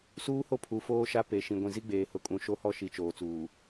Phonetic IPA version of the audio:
s uː˦ h o˦ pʰ u˨ f oː˦ ʃ a˦ p e˨ ʃ ĩ˨ ɡʷ ĩ˨ z i˦ ɡ͡b eː˨ h ʊ˨ kʼ ũ˨ ʃ o˦ h ɔ˦ ʃ i˨˦ t͡ʃ oː˨ t͡s uː˨

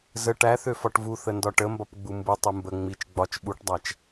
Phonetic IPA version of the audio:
z ə ʈ æ θ ø f ɒ ʈ v u θ ə n d ɒ ʈ ə m b ɒ p ɡ͡b u m b u tˤ u m b ə ŋ͡m i t͡ʃ ɡ͡b ɒ t͡ʃ ɓ u ʈ dˤ æ t͡ʃ

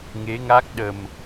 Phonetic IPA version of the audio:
ŋ e˨˦ ŋ a˦˥ k̚ ɗ ə˨˩ m

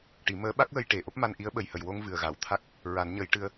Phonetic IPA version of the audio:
ʈ i˨˩˦ m əː˧˥ ɓ a˦˥ k̚ w ə˧ j ʈ e˨˩ ʔ o˦˥ p̚ m a˧ n ʔ i˧˥ ə̯ ɓ ə˨˩ j h ə˨˩ j w o˧ ŋ v ɨ˨˩ ə̯ ɣ a˨˩˨ w t̪ʰ a˦˥ k̚ | ɹ a˨˩˦ n ɲ ə˨˩˦ j ʈ ɨ˧ ə̯

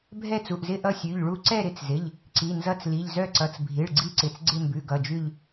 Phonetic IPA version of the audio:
bʱ ɛ˦˨ t͡s u˩˧˩ ʔ z ɪ˦˨ ʔ ʌ˦˨ sʲ ʉ˩˧˩ ʎ ɭ u˦˨ ǀ ɛ˦˨ ɾ ɪ˩˧˩ t͡s z ɪ˩˧˩ ʎ | ǀ i˩˧˩ n z ʌ˦˨ t͡s l i˩˧˩ ʎ z œ˦˨ ǀ ʌ˩˧˩ t͡s bʱ i˩˧˩ ɭ ɡ͡ǀ i˦˨ ǀ ɪ˩˧˩ t͡s ɡ͡ǀ ɪ˦˨ m b ʉ˩˧˩ ɡ ʌ˩˧˩ d͡ʒ ʉ˦˨ ʎ

